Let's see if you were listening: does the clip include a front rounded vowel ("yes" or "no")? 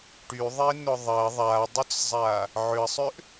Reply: yes